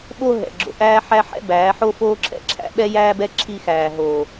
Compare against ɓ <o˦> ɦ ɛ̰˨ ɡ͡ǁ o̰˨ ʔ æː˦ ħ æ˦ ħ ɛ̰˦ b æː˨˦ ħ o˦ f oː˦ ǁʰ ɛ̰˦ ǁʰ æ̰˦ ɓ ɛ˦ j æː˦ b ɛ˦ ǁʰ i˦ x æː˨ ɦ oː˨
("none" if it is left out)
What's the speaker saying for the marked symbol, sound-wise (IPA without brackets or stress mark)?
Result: o˦